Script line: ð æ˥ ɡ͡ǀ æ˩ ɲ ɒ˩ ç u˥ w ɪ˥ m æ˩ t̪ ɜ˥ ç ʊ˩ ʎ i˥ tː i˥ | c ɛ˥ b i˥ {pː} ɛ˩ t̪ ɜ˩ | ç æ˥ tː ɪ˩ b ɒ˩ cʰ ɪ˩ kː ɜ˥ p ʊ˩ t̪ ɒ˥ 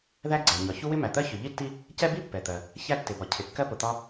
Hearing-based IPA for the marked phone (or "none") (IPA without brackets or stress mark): pː